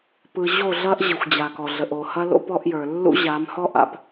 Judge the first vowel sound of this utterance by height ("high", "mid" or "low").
high